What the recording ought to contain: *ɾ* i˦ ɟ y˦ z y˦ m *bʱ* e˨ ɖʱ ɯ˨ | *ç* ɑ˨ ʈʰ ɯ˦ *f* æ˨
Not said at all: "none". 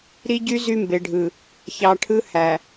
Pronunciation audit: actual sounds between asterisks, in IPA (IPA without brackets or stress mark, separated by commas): ɾ, b, ç, h